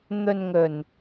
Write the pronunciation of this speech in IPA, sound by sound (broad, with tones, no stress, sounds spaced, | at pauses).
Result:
n̪ ɵ˨ n ŋ ɵ˨˩ n